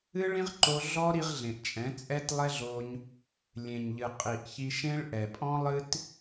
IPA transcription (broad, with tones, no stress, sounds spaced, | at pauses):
ɨ˦ ɭ ĩ˦ ʁ ǃ o˧ ɮ ɔ˦ ɾ i˧ ʁ ɮ ẽ˨ ʔ t͡ʃʼ ɛ̃˨˦ t͡sʼ ɛ˦ t lˠ ɛ˦ ɮ o˧ ɲ | lʲ ẽ˨ ɲ ʎ ɨ˨ qʼ i˨ ʔ ç i˧ ʃ ẽ˦ ɭ ʔ ɛ˨ pʼ ɔ̃˦ lˠ ɨ˦ t